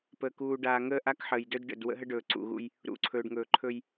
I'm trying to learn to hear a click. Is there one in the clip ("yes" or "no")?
yes